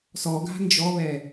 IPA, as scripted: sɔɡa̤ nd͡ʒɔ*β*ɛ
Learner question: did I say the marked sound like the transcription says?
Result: yes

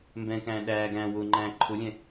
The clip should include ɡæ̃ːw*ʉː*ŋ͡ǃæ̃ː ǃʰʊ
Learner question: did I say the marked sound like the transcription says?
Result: no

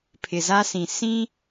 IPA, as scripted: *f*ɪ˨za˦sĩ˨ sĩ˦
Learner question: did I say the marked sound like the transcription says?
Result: no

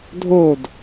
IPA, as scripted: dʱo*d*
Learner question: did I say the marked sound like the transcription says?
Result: yes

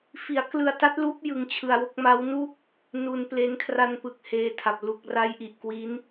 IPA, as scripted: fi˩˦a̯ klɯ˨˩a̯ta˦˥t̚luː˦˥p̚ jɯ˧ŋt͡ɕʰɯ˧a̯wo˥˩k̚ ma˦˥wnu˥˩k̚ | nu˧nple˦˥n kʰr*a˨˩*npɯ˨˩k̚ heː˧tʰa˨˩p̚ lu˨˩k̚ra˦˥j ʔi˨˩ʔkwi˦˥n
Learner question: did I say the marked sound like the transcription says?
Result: no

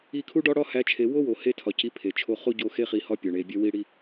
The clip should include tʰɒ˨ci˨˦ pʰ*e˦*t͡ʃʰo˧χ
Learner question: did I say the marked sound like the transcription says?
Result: no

